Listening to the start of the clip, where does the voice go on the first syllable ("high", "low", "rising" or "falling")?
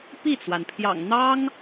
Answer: falling